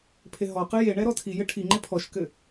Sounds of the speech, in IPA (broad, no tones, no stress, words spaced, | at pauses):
pʰeɦɔqɨ jeɳɛ ɾɔtʰijɘ ʈʰiŋ͡ǃe pʰɔʃkɘ